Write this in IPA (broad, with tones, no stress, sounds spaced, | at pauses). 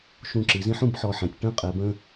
ʃ ũ˧˩ ǁ i˩˧ z ĩ˥ ħ ũ˩˧ b ħ ɔ˧˩ ħ ɛ̃˩˧ tʲ ʈ ə̃˥˧ qʼ ɛ˩˧ b ə̃˥˧